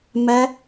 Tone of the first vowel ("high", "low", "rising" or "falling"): high